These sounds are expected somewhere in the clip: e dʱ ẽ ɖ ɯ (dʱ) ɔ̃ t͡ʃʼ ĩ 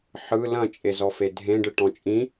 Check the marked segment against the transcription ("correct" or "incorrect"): incorrect